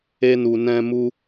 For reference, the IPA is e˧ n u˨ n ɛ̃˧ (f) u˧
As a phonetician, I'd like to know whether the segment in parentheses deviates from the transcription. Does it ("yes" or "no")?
yes